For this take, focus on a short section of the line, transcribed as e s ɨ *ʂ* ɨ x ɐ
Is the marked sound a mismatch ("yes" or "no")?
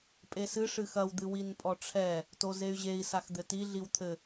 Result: no